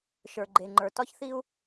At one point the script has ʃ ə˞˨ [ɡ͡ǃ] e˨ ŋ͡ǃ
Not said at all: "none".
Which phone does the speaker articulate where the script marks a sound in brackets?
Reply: ɡ͡ǃ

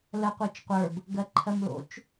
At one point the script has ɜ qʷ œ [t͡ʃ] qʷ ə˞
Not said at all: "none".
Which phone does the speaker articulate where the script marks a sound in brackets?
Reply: t͡ʃ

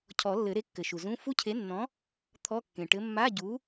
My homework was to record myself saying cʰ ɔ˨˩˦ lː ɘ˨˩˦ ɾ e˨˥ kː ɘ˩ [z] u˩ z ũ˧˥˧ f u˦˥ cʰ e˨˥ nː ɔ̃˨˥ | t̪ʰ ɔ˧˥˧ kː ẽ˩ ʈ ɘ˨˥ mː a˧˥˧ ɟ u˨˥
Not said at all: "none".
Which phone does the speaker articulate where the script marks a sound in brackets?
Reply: ʃ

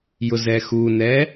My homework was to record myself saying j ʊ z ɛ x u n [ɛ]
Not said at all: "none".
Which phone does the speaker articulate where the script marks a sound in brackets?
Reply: ɛ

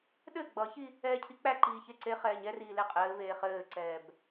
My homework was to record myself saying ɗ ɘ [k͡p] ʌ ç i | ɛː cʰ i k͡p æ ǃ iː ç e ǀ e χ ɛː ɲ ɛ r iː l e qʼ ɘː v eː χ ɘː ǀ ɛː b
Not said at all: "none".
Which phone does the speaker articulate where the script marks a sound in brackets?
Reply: ɡ͡b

